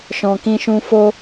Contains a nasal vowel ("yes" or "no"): yes